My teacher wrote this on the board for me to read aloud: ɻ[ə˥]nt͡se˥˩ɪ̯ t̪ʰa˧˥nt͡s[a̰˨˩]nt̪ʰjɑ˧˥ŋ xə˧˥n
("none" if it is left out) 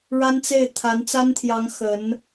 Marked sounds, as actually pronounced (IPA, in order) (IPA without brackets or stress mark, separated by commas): a˥, a˥